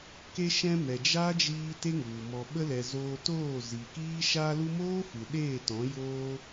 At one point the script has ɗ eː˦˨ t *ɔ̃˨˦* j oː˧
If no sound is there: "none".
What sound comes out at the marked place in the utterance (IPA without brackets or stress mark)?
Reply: ɔ̃˨˦